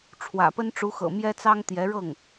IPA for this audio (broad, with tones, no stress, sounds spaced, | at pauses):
ʈ͡ʂʰ w ä̰˨˩ p ə˥ n ʈ͡ʂ u˧˥ x ɤ̰˨˩ m j ɛ˥ t͡s ɑ˥ ŋ t̪ j ɛ˧˥ ɻ ɤ˥˩ ŋ